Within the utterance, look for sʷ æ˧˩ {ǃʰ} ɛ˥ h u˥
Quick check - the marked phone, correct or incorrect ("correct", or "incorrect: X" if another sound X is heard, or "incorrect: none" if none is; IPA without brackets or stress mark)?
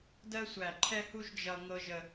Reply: correct